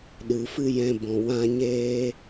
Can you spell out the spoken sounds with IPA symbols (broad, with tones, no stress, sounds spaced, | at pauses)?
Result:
ɗ ɨ˨ f ɨ˦ j ɛ̃˧ b ɔ̃˨ w ã˦ ɲ eː˦